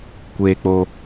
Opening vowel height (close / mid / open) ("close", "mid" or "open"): mid